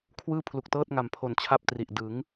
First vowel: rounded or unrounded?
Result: unrounded